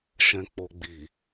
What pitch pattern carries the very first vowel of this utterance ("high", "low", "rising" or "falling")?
low